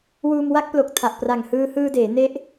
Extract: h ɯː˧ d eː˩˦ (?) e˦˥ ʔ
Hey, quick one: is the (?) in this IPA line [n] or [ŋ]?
n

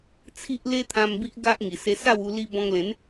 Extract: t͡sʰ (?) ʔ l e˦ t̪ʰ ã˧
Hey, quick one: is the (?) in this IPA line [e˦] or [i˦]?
i˦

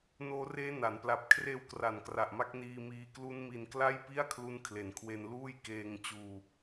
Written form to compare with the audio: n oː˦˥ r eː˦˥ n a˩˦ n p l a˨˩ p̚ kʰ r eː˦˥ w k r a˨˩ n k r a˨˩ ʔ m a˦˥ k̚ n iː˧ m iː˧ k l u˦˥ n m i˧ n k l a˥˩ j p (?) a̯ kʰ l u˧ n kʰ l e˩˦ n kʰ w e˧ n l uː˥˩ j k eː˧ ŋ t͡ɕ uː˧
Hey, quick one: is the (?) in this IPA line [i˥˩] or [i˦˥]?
i˥˩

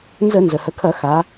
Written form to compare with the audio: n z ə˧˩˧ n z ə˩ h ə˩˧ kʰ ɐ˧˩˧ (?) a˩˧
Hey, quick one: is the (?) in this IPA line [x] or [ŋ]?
x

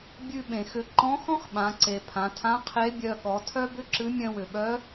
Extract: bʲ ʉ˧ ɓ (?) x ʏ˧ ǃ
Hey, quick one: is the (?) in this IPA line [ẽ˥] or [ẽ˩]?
ẽ˩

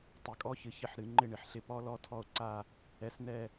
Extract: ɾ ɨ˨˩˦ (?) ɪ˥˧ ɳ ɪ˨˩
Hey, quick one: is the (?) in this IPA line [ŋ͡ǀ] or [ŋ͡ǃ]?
ŋ͡ǃ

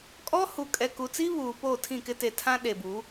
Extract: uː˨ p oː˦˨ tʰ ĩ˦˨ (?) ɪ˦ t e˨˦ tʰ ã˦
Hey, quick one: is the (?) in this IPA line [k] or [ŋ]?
k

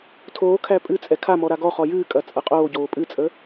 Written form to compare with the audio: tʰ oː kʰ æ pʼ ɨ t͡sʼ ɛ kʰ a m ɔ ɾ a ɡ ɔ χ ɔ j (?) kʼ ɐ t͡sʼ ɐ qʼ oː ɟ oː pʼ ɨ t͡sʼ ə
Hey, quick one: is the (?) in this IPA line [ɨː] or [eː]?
ɨː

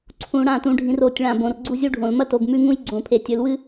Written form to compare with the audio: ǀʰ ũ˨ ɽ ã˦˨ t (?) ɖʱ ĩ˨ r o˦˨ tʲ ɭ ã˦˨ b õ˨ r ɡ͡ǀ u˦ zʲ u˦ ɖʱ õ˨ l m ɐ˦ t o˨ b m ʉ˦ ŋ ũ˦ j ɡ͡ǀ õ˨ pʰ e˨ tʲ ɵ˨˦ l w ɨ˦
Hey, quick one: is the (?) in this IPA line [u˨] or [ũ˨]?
ũ˨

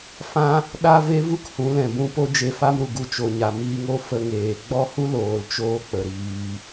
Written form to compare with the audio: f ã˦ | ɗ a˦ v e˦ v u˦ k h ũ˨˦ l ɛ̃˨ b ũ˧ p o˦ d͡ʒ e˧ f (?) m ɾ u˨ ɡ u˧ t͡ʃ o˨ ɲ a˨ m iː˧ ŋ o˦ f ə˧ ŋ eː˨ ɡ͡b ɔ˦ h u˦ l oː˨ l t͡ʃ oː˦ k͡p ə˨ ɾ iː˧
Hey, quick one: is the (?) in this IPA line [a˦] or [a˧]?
a˦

